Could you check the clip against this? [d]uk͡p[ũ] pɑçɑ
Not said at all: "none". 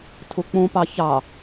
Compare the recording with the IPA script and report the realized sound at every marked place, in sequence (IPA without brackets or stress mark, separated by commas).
tʰ, ũ